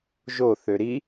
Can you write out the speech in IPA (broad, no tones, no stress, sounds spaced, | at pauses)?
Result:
ʒ o θ ø ɾ i